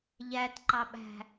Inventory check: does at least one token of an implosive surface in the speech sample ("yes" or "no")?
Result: yes